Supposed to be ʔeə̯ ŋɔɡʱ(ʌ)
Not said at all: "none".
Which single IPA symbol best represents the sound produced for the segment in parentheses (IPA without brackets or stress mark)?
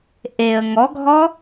ɔ